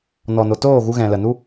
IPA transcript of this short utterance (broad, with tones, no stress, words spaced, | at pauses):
nɔ˨no˨toː˦˨ ɣu˧ɣɛ̃˨lə˨nu˦